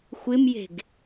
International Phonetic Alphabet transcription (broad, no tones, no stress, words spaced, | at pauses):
xʷɪmje̤ɡ